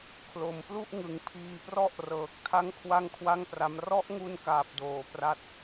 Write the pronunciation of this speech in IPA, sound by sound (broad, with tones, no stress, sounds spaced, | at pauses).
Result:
kʰ l o˩˦ m p l u˥˩ ʔ ŋ ɯ˩˦ ŋ pʰ iː˧ p r ɔ˥˩ ʔ r ɤː˨˩ k̚ tʰ a˦˥ ŋ kʰ w a˥˩ ŋ kʰ w a˥˩ ŋ p r a˦˥ m r ɔ˦˥ ʔ ŋ u˧ n k aː˨˩ p̚ d oː˩˦ p r a˥˩ t̚